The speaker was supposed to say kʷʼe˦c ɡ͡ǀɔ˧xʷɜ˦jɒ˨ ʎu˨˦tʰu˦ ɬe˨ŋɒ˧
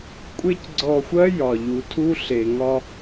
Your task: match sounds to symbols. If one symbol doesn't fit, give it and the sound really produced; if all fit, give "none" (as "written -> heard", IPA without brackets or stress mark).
none